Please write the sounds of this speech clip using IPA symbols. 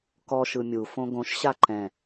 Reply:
k ɔ ʃ ɯ mʲ u f õ ɡ õ ʃ ɕ a ǃ ɛ̃

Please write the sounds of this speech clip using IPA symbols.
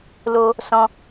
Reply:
l o˧ | s ɔ̃˧

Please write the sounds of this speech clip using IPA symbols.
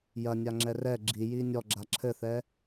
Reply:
j ɐ nʲ a ŋ͡ǁ ɛ r ɛ ɡ͡ǁ i j i nʲ ɔ ɡ͡ǁ a ǁʰ ɘ θ ɛ

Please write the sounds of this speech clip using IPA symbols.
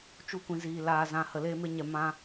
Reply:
t͡ʃ u˧ kʷ ĩ˨ z iː˨ l aː˨ z ã˨ h ə˨ l eː˧ m e˧ ɲ ɛ˨ m ã˧

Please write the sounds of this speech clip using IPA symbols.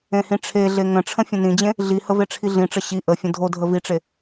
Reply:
ẽ h ĩ ʈ͡ʂʰ e ɮ e ŋ ə̃ ʈ͡ʂʰ ə̃ fʲ ə̃ n ĩ d͡ʑ ẽ | ɮ i h ə v e ʈ͡ʂʰ i ɮ ĩ ʈ͡ʂ ə ɕ i ʔ ə fʲ ə̃ dʱ o dʱ ə v i ʈ͡ʂ e

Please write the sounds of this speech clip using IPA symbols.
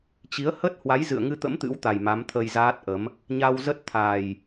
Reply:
t͡ɕ i˨˦ ə̯ h ə˦˥ t̚ h w a˨˦ j z ɨ̰˧˨ ə̯ ŋ ɨ˧ t̪ ə̰˧˥ m t̪ ɨ̰˧˥ w t̪ a˨˩ j m a˨˦ m t̪ʰ ə˧ j z aː˦˥ t̚ ʔ ə˨˦ m | ɲ a˧ w z ə˦˥ t̚ t̪ʰ a˨˩ j

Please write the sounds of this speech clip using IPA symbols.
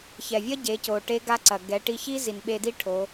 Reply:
ç ɛ˩ vʲ ɐ˥ ɟ e˩˧ c o˩ ʈ e˧˥ ɡ a˧˥ ǀ ɐ˩ ɡ ɛ˩˧ ʈ i˧ ç i˥ z i˩ n ɓ e˧ d i˥ ʈʰ o˩˧

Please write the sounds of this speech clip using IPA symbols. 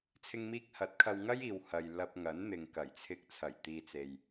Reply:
t͡sʰ ɪ˧ ŋ m iː˧ k̚ h ɐ˨˥ t̚ kʰ ɐ˧ w ŋ ɐ˥ j iː˨ w h ɐ˨ j l ɐ˧ p̚ ŋ ɐ˨˥ n n̪ ɪ˨ ŋ k ɐ˨˩ j t͡sʰ ɪ˧ k̚ t͡sʰ ɐ˨˩ j t̪ iː˨ t͡s e˨ j

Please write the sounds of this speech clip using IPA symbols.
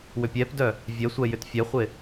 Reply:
w ʏ pʲ ɛ p d œ | vʲ ɛ sʷ ɛ j ʏ t fʲ ɛ χʷ ɪ

